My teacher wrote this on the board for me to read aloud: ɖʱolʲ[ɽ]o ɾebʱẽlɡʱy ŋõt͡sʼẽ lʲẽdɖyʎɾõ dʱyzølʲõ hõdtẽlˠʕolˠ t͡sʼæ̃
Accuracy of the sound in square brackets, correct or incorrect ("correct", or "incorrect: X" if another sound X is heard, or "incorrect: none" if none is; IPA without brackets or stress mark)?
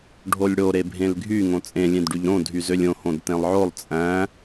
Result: correct